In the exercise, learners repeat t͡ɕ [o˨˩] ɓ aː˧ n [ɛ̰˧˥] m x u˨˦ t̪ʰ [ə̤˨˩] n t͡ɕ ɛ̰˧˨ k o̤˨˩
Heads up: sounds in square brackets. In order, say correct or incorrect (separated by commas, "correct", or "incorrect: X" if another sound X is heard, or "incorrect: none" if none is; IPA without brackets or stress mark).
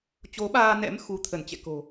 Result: incorrect: o˨˦, correct, incorrect: ə˧˩